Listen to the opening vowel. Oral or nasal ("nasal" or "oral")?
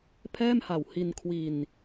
oral